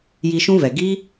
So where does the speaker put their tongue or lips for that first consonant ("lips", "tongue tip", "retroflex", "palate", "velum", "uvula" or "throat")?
palate